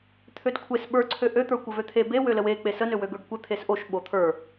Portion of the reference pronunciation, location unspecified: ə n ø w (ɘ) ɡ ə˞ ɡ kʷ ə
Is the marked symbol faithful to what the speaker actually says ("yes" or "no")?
no